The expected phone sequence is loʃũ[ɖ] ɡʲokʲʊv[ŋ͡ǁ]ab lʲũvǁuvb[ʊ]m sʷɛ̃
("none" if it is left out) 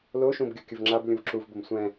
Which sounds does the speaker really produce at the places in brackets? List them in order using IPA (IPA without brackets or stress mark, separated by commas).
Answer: b, ŋ͡ǁ, ʊ